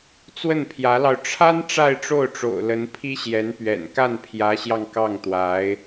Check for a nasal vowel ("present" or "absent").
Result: absent